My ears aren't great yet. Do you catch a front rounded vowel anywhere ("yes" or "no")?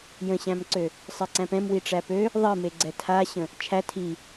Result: yes